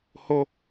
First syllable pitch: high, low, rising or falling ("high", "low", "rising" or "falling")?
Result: high